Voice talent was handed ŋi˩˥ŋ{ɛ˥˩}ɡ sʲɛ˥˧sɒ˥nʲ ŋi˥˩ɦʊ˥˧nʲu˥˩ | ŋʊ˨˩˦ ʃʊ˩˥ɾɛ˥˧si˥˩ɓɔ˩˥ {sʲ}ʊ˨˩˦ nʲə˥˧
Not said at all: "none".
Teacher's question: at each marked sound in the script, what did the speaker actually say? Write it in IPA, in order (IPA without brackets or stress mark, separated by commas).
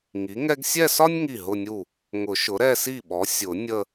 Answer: ɛ˥, sʲ